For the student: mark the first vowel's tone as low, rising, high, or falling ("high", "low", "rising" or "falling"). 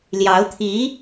rising